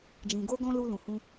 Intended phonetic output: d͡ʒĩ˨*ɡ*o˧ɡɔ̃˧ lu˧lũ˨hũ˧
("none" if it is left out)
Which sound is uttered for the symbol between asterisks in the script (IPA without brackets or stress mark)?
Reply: ɡ